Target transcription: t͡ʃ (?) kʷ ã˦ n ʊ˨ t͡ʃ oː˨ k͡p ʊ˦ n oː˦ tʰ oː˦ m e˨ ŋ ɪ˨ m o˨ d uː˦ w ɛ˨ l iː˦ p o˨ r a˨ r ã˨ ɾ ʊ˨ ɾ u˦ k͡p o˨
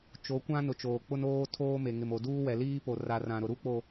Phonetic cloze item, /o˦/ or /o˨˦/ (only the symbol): o˨˦